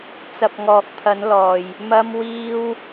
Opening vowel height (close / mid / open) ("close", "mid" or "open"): open